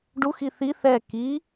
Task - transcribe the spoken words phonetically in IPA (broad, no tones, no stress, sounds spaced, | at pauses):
ɖ u x i θ i θ ɛ k i